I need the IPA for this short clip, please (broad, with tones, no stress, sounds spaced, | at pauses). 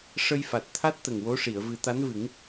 ʂ ə˧ j f a˨˩ t̚ t̪ʰ a˦˥ t̚ t̪ ə˨˩ ŋ w o˧˥ ʂ i˨˩˨ ə̯ v ɨ˨˩˦ t̪ a˧˥ n v ɨ˨˩˦ ŋ